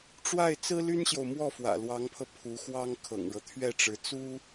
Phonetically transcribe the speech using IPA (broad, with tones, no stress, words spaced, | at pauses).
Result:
ʈ͡ʂwa˥˩ɪ̯t͡sɹ̩˥ly˥nɕjo˨ʊ̯ mwɔ˥˩fwä̰˨˩lwɑ˧˥ŋpʰɤ˧ pʰu˧˥xwɑ˥ŋ kʰɤ̰˨˩ŋɻɤ˦t̪ʰɥɛ˥˩ʈ͡ʂɻ̩˧˥ t͡su˥